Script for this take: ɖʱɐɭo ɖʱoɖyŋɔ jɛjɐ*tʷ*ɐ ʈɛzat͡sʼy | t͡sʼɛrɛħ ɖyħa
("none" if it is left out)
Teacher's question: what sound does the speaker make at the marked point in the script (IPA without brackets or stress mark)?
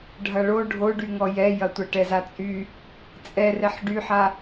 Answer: tʷ